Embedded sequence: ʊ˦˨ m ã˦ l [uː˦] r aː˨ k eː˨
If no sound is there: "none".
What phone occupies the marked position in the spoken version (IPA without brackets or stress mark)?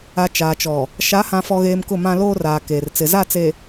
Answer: oː˦